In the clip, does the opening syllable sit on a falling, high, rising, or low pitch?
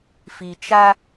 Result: low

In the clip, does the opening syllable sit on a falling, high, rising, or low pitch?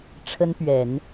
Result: high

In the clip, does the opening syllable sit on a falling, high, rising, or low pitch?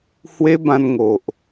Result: high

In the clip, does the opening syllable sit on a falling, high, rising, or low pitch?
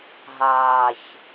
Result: low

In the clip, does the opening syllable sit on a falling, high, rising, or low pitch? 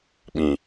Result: low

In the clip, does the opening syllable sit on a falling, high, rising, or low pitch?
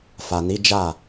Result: low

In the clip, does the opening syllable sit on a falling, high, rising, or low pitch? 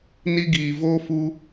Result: high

